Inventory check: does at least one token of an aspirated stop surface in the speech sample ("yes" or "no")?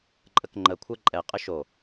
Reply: yes